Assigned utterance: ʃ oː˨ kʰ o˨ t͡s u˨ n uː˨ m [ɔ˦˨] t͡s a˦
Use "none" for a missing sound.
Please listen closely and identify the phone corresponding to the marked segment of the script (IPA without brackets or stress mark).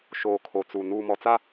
ɔ˨